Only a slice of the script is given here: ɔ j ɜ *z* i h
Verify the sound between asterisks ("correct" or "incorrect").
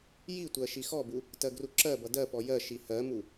incorrect